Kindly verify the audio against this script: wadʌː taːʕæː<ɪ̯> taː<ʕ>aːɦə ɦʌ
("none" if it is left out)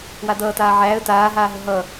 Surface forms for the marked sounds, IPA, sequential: ə̯, ɦ

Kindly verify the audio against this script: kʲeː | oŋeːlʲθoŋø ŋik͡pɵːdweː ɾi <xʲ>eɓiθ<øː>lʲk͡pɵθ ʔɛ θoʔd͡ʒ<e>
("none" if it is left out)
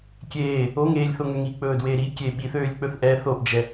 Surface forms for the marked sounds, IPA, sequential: kʲ, øː, ɛ

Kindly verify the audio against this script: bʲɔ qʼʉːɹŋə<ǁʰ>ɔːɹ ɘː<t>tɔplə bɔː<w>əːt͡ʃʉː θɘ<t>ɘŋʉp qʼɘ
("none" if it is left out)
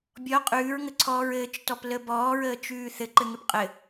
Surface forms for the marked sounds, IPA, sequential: ǀʰ, t͡ʃ, ɹ, ǃ

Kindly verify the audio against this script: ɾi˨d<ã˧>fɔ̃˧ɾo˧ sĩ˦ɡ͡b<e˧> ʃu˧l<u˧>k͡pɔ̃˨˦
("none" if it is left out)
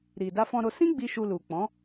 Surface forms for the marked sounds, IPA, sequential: a˧, i˧, u˨

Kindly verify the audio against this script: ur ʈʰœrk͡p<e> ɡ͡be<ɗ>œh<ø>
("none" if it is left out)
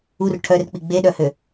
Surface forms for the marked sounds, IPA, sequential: i, ɗ, ø

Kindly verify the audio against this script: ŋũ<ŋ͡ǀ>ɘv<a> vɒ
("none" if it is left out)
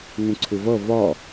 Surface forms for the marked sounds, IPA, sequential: ǀʰ, ʌ

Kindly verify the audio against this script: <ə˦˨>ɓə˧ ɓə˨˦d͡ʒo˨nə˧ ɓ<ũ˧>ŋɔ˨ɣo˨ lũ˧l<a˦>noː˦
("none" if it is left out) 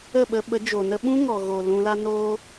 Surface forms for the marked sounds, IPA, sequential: ə˦˨, ũ˦, a˦

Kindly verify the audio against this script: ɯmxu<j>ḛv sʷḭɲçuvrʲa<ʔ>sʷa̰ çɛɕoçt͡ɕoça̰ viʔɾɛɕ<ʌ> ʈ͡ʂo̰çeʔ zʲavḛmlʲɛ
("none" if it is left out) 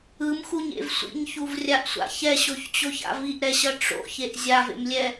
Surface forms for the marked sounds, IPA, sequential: ɲ, ʔ, ʌ

